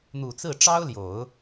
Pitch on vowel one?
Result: low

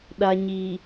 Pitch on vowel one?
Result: low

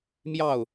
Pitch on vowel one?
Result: falling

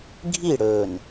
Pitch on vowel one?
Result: falling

